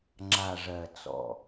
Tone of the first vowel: low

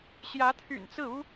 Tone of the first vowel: rising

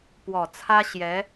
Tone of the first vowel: low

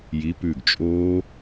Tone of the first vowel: rising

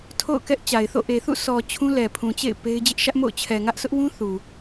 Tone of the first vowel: falling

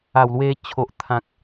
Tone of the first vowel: low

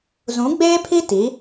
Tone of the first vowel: rising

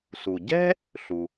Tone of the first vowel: low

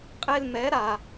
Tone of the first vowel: high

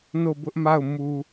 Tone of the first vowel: falling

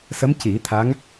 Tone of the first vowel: rising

